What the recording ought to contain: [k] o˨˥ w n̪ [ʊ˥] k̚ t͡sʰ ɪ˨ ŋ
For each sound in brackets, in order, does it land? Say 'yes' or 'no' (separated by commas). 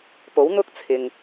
no, yes